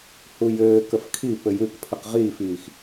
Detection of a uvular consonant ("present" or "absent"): present